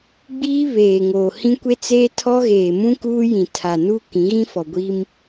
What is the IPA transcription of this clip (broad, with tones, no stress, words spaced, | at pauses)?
ɡ͡biː˦ βeː˨ŋoː˨ hĩ˦kʷe˦t͡seː˦ tʰɔ˦ɣeː˨mũ˦kuː˦ jĩ˨tʰa˨nuː˦ kĩ˨˦ɣĩ˦fɔ˨ ɡʷiː˦m